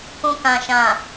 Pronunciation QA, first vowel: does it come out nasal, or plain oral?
nasal